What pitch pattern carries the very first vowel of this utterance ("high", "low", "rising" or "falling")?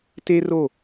high